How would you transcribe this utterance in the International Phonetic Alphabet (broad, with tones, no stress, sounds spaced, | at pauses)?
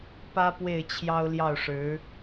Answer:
p ä˥ p w e˥˩ ɪ̯ t͡ɕʰ j ɑ˥ ʊ̯ l j ɑ˥˩ ʊ̯ ʂ ɻ̩˧˥